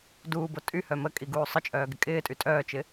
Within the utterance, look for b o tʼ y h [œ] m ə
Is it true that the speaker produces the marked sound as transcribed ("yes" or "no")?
yes